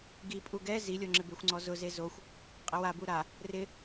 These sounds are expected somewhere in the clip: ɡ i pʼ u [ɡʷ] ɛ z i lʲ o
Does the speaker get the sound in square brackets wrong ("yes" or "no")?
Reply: yes